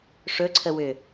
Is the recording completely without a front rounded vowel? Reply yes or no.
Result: no